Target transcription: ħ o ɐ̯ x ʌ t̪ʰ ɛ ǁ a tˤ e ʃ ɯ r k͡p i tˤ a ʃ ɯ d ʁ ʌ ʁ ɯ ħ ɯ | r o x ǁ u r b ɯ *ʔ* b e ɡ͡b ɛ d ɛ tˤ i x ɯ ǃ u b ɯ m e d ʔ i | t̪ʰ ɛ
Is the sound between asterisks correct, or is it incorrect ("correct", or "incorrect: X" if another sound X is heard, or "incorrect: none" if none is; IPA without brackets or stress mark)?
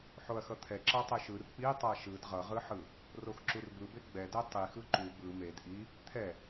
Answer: incorrect: none